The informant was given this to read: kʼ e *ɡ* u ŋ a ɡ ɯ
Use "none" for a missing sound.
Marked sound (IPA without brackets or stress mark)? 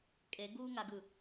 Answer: ɡ